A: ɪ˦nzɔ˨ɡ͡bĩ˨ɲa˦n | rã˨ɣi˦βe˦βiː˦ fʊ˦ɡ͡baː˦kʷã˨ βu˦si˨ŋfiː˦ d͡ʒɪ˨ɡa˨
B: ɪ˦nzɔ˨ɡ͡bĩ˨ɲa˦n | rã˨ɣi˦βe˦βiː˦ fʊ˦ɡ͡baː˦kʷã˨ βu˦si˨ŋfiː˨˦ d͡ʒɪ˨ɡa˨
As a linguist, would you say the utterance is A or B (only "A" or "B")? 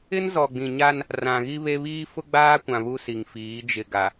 B